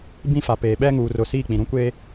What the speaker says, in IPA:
b ĩ˦ f a˨ p eː˨ ɓ ɛ˦ ŋ uː˨ r ʊ˨ s iː˦˨ k͡p ĩ˨ ɾ ũ˦ kʷ eː˦

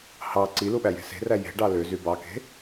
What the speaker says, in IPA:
h ɑ ǀ i l u ɓ æ j e̤ s e̤ r æ j e̤ ɖ ɑ l ø z y b ɑ k e̤

